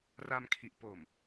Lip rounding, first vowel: unrounded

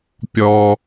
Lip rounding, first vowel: rounded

